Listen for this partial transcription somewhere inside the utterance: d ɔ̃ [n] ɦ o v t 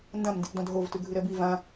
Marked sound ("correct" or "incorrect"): incorrect